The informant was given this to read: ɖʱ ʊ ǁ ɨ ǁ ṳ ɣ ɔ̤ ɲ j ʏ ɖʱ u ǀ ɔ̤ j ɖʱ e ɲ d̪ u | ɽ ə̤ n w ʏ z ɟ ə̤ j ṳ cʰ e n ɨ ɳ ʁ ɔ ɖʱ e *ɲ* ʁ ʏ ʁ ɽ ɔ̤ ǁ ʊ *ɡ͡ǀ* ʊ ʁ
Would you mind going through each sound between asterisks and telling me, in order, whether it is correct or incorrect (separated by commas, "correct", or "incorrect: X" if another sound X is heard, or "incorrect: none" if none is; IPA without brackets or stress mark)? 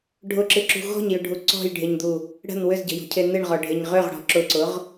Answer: correct, incorrect: ǀ